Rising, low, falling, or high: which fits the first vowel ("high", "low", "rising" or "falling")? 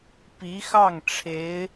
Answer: rising